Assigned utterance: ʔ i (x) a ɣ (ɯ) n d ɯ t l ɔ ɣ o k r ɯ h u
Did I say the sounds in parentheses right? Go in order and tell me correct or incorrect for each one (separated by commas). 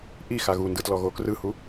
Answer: correct, incorrect